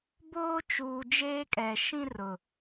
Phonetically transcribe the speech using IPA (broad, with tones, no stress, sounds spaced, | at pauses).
b oː˦ t͡ʃ uː˨ d͡ʒ eː˦ kʼ ɛ˨ ʃ ĩ˦ r ʊ˨